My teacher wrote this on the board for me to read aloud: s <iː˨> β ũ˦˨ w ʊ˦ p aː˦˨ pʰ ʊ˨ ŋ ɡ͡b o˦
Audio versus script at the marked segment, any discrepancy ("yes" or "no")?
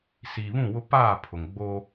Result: no